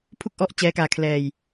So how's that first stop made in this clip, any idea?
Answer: aspirated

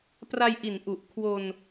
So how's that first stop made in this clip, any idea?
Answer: plain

